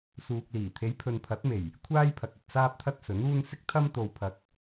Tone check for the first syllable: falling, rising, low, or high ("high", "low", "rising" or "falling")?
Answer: low